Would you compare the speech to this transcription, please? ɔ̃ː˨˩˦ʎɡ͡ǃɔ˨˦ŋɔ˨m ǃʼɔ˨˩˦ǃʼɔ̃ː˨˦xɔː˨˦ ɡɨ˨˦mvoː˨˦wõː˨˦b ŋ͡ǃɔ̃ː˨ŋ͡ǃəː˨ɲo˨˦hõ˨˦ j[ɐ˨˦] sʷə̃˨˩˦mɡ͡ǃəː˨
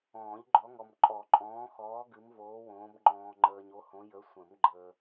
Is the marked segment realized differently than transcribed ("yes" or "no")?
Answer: yes